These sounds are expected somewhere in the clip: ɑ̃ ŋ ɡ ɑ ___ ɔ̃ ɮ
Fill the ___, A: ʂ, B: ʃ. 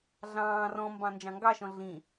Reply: B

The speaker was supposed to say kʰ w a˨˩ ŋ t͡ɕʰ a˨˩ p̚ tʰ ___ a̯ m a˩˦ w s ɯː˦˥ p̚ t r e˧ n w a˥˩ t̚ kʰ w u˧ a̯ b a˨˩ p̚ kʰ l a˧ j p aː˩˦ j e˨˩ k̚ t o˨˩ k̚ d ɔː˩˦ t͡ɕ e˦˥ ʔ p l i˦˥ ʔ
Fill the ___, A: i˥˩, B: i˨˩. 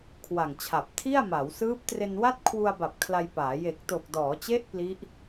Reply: A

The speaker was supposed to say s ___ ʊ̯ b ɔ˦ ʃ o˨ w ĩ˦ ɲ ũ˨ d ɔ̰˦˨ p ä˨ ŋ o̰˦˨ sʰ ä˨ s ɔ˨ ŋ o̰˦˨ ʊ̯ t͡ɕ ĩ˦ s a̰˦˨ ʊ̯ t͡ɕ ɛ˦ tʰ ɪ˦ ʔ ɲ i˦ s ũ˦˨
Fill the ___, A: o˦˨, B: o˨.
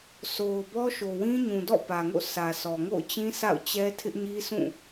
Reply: B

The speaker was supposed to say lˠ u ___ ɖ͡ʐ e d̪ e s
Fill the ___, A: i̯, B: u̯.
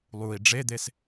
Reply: A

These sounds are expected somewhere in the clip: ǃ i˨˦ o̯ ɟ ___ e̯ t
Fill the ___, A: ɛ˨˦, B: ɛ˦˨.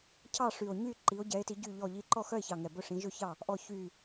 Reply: A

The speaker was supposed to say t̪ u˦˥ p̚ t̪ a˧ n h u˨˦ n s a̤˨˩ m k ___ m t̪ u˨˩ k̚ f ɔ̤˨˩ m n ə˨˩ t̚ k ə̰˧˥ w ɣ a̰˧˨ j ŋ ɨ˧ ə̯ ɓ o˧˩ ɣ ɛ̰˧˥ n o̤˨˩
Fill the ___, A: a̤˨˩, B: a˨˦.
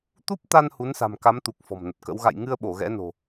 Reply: B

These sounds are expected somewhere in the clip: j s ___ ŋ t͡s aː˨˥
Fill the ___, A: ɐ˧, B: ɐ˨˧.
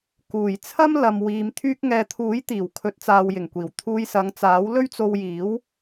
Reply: B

